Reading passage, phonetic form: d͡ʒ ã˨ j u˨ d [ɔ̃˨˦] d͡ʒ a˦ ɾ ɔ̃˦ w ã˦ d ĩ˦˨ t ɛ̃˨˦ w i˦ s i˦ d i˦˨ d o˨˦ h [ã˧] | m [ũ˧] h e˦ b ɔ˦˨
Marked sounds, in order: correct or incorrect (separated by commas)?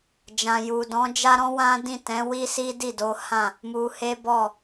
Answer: correct, incorrect, incorrect